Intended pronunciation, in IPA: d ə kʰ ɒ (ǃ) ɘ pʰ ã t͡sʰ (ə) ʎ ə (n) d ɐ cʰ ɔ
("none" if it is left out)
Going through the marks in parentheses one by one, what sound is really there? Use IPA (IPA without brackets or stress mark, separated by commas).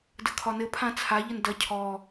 n, a, n